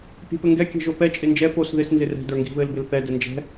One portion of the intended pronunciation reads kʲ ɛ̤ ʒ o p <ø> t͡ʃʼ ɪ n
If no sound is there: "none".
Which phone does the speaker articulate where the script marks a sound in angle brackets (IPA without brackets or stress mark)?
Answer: ɛ